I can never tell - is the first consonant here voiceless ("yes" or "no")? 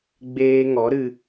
no